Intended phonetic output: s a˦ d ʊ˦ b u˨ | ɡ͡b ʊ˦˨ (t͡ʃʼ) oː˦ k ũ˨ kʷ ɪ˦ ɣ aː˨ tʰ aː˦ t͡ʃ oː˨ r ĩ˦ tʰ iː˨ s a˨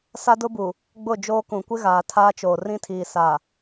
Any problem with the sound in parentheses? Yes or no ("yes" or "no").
yes